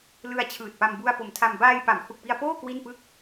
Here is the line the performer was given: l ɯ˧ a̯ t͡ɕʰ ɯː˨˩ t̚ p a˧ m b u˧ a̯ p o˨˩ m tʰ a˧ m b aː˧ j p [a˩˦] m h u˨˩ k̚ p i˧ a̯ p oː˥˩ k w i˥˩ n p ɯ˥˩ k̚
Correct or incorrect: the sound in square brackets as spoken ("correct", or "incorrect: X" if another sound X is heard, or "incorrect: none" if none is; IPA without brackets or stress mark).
correct